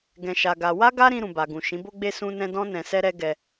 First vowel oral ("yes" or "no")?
no